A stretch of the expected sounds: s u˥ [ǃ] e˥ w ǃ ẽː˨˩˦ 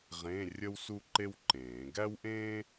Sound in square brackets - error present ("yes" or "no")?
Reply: no